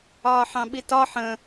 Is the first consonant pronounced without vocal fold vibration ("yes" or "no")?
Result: yes